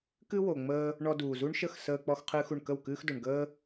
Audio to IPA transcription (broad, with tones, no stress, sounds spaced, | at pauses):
k ɨ˥ w o˩ ŋ͡m əː˧ | ɳ ɔ˧ d uː˩ z u˥ ɳ ʃ ə˥˩ x s əː˧ k͡p ɔ˧ x qʰ ɨː˧ x u˩ ɳ k ə˥˩ w k ɨː˥ x d o˩ ɳ ɡ əː˥